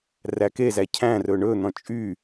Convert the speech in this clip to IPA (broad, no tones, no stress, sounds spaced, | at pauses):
r æ k e z æ cʰ æ̃ r ɵ ɳ ɵ n̪ ɔ̃ t͡ʃʼ y